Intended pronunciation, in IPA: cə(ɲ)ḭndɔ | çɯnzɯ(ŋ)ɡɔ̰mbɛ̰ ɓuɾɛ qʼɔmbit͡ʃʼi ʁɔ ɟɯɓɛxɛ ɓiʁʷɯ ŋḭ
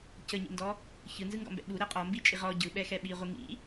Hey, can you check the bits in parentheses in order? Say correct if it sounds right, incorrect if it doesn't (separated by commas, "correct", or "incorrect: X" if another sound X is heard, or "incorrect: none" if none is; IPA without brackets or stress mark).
correct, correct